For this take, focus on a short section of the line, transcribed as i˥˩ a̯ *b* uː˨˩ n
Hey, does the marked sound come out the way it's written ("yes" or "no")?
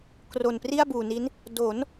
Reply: yes